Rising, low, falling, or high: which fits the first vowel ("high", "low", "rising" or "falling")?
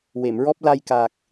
low